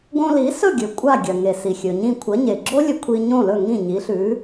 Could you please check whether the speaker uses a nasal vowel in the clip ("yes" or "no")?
yes